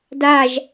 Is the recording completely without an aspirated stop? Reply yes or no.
yes